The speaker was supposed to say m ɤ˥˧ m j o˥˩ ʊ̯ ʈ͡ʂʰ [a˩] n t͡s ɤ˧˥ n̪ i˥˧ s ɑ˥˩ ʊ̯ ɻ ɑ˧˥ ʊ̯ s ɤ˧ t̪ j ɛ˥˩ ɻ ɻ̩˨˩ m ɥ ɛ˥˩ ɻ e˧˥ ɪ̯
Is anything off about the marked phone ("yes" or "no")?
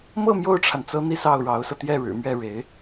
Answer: no